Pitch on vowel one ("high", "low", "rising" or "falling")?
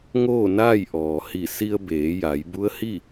falling